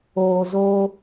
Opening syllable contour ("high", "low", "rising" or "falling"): low